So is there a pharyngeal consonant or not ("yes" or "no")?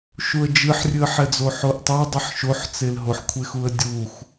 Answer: yes